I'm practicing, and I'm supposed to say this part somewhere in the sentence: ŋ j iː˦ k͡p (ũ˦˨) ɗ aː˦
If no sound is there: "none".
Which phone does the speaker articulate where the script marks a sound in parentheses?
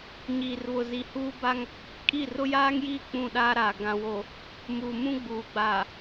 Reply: ũ˦˨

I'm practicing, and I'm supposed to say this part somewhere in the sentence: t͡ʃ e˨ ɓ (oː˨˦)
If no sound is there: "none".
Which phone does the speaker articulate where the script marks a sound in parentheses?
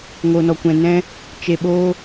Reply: oː˧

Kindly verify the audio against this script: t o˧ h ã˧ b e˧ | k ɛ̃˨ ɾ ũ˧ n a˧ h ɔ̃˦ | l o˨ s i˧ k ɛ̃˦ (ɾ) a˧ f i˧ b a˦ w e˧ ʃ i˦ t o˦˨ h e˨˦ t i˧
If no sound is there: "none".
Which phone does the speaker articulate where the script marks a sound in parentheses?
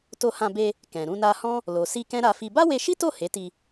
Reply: ɾ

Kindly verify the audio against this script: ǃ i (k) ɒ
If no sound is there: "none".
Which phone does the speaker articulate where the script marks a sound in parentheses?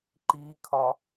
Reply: kʰ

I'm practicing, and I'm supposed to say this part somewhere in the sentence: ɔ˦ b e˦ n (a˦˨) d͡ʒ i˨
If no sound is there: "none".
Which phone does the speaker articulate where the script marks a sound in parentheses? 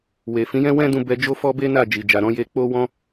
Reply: a˦˨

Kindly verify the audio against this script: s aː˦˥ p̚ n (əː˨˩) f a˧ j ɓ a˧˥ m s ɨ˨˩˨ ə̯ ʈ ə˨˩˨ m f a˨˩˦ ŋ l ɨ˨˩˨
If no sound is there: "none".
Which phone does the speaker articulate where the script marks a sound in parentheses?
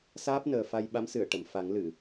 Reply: əː˨˩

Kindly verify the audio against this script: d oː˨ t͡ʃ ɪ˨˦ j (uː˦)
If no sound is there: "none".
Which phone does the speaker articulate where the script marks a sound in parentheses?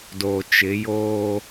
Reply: oː˦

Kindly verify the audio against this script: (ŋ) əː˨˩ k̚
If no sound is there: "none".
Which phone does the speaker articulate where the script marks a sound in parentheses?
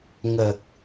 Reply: ŋ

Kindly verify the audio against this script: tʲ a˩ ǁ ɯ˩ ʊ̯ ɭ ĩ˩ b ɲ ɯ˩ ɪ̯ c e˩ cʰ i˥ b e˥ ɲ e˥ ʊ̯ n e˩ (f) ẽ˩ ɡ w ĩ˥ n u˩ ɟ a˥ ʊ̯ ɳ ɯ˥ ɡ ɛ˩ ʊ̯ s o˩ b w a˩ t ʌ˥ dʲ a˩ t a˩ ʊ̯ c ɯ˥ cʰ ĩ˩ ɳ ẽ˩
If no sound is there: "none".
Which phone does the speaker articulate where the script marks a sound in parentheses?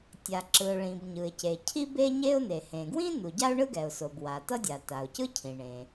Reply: h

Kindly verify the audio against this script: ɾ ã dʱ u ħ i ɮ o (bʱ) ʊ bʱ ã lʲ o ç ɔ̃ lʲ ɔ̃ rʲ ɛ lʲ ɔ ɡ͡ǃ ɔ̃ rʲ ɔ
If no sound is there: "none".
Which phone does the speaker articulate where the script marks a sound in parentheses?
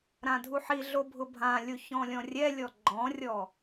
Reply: bʱ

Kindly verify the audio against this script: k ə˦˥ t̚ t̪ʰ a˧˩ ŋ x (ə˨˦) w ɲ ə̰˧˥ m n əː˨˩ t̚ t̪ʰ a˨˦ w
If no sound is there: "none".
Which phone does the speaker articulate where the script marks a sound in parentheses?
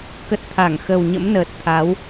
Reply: ə˨˩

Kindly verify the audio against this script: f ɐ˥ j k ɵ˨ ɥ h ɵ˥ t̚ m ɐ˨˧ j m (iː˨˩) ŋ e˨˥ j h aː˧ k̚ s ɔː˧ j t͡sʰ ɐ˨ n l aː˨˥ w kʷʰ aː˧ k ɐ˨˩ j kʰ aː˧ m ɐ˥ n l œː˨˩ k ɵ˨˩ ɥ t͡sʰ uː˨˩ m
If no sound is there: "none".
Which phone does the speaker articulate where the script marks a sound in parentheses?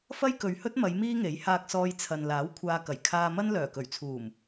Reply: iː˥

